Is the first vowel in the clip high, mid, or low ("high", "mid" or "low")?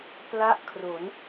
low